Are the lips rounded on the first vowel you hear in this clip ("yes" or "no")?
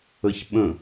no